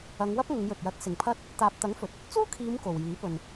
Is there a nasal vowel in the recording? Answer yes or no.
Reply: no